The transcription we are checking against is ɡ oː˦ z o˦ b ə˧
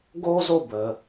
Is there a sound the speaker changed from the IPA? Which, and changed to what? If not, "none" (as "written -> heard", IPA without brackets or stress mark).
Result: none